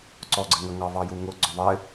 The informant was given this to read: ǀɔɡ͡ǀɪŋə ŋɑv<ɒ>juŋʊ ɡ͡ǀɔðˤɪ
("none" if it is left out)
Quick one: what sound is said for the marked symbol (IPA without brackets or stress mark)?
ɑ